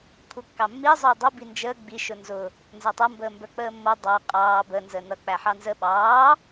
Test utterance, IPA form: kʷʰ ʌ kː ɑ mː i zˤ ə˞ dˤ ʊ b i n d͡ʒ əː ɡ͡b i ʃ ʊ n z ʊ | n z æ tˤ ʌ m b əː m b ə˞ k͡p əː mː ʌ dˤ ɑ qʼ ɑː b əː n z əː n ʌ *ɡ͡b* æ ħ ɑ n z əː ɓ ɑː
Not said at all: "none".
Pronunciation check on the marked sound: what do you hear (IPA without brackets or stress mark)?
k͡p